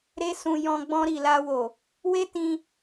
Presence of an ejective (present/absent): absent